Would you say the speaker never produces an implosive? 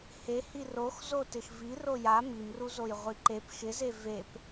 yes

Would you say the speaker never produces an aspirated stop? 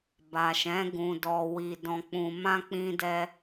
yes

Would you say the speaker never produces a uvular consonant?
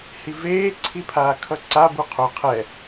no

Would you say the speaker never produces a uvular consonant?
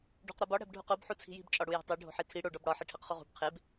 no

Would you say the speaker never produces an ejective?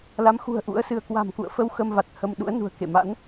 yes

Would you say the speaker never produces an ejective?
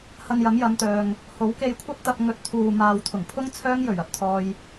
yes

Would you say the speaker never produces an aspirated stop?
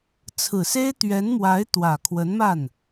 no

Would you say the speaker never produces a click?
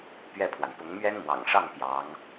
yes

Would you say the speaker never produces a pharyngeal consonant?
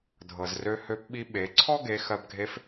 yes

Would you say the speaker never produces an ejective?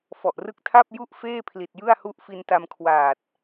yes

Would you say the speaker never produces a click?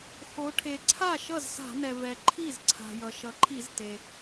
no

